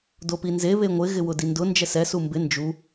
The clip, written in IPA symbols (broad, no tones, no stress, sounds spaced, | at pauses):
d o p i n z e β e ŋʷ ɪ ɣ ɪ w ʊ d i n d ʊ n d͡ʒ ɛ s ɛ s u m b ɪ n d͡ʒ u